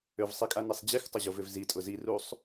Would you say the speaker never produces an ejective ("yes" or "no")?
no